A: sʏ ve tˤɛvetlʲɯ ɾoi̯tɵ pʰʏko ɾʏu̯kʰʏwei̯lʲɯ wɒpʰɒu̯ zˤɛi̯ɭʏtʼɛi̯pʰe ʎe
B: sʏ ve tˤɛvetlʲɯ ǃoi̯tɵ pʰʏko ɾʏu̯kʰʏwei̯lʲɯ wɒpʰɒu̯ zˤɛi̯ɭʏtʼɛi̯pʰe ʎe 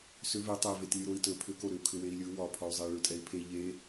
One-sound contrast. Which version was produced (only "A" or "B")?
A